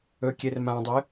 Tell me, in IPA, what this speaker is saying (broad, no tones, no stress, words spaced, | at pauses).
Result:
ɵ kʲermãdˤɨ